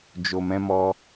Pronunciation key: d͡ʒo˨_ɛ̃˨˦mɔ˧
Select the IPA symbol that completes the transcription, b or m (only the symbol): m